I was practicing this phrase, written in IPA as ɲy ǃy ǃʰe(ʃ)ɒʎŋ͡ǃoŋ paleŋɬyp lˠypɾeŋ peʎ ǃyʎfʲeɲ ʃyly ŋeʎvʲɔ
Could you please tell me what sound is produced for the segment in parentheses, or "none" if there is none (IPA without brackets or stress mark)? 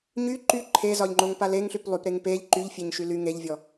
z